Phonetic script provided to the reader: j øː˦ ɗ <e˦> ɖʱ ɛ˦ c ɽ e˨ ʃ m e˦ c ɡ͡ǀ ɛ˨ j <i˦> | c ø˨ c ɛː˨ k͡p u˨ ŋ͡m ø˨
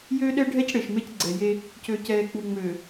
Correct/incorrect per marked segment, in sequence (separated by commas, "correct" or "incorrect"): incorrect, incorrect